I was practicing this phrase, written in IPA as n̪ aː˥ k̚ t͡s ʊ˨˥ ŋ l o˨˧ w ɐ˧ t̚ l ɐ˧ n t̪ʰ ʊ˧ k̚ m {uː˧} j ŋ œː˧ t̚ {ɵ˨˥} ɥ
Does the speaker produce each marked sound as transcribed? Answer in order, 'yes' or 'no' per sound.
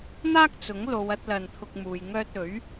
no, yes

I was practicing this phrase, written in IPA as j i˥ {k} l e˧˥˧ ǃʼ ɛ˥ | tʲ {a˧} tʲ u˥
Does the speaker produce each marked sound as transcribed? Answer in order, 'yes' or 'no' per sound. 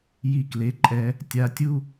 yes, yes

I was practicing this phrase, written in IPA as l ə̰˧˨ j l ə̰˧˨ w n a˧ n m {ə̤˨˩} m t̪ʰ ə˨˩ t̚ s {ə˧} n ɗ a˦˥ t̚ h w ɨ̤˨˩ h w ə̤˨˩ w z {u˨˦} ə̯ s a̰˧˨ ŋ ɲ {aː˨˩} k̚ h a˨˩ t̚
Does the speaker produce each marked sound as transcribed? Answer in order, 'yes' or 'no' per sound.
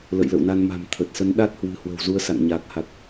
no, no, yes, yes

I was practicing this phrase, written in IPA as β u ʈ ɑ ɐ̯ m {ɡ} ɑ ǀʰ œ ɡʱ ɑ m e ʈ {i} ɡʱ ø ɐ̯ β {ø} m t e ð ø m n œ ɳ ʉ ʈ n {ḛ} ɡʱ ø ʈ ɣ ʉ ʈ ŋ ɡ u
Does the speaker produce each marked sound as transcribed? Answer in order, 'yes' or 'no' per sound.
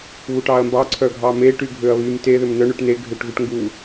no, no, no, no

